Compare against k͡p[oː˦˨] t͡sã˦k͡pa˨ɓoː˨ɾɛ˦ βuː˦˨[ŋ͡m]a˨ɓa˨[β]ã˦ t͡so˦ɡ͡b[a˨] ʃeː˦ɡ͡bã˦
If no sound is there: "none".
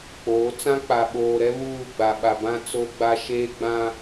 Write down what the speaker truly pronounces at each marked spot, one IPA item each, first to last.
oː˨˦, ɡ͡b, b, a˦

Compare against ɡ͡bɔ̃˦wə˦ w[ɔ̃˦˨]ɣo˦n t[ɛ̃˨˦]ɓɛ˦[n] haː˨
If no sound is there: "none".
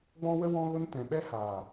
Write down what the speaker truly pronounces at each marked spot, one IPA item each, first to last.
ɔ̃˦, ɛ̃˨, none

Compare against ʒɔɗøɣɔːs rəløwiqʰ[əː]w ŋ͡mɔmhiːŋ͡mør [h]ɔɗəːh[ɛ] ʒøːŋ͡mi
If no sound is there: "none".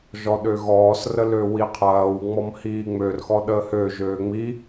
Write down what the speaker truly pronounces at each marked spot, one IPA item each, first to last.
ɐː, x, ø

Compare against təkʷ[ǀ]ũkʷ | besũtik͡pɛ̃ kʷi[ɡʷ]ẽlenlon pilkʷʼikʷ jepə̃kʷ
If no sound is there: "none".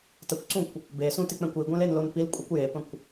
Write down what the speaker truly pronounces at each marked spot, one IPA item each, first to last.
ǀ, ɡʷ

